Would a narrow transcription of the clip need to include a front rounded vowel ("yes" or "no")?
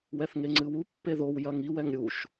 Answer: no